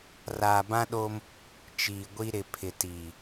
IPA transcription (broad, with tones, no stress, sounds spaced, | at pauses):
r aː˨ b ã˦ ɗ oː˦ m | t͡ʃ iː˨ ɡʷ i˦ ɾ ɪ˨ pʰ ɪ˨ t iː˨